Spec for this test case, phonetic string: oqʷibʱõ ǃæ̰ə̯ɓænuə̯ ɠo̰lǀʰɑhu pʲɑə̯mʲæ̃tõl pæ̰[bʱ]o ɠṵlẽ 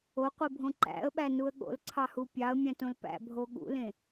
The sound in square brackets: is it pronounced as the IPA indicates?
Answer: yes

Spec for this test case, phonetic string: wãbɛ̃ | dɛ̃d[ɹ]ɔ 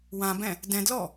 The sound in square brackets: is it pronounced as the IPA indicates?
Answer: no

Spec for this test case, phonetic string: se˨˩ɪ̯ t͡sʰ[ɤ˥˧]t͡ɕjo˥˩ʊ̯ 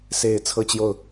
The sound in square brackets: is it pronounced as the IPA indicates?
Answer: yes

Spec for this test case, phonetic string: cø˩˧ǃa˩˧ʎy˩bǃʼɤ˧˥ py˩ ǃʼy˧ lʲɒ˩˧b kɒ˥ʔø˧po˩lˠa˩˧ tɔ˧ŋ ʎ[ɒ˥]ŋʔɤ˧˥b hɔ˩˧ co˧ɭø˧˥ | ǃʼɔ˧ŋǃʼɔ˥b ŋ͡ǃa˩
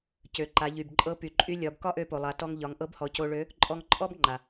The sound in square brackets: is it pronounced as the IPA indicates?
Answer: no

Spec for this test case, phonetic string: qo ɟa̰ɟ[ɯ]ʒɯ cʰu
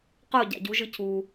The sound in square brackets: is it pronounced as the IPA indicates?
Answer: no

